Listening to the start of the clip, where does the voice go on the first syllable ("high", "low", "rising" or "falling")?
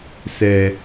low